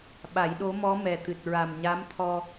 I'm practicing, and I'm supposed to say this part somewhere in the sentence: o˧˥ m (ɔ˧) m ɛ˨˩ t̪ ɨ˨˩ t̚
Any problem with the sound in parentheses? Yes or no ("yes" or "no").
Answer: yes